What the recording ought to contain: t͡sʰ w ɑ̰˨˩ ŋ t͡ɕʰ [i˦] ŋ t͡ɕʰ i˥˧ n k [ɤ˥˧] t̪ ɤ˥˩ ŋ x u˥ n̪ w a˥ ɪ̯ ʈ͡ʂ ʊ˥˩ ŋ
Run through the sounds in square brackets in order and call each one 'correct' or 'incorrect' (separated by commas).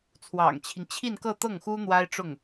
correct, correct